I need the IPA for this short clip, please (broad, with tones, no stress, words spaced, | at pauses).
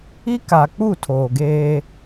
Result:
i˦ ka˨k͡pu˦˨ tʰoː˨ɡeː˦